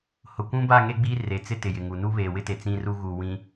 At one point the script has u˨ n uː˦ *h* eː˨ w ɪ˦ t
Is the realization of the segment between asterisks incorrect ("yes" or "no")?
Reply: yes